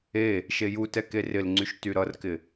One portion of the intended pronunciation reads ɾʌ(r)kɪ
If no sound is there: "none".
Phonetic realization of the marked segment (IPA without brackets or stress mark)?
r